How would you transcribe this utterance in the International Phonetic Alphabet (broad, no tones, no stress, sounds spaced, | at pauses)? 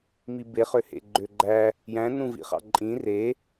m i b e χ ø h ḛ ɡ͡ǃ ø ɡ͡ǃ æ | j æ̃ n ũ v ḭ χ ɑ̰ ǃʼ ĩ r e